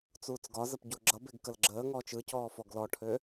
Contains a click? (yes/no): yes